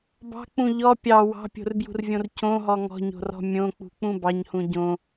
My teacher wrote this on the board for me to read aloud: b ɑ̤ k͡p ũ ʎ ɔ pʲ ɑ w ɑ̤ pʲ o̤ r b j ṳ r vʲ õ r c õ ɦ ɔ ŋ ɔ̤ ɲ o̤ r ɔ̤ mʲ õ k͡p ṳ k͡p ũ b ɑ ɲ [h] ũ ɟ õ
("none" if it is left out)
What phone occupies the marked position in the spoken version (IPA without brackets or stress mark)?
h